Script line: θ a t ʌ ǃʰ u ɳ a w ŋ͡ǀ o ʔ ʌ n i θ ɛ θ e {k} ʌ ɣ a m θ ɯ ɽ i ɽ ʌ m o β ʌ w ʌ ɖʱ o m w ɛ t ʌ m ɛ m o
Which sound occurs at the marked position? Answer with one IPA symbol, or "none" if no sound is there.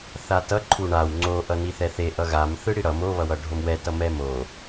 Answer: ʔ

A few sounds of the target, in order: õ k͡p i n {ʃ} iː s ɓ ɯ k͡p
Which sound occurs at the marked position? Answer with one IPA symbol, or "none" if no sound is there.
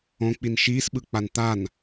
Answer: ʃ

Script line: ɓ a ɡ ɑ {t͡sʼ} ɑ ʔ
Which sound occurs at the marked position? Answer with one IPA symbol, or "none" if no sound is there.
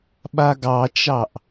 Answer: t͡ʃ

